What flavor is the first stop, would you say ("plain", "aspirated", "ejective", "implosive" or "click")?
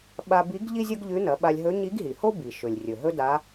implosive